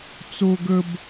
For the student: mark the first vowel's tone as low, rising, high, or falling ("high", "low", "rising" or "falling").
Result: high